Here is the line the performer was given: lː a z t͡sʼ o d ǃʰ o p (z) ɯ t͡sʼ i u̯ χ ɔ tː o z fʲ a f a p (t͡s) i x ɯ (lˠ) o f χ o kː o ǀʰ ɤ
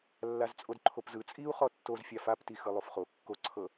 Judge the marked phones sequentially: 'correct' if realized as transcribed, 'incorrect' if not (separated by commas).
correct, incorrect, correct